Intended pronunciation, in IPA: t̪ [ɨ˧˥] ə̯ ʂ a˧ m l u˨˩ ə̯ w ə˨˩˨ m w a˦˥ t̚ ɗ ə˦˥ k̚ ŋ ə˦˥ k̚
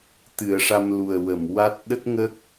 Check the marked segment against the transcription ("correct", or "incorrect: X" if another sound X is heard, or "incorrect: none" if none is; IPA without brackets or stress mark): incorrect: ɨ˨˩˨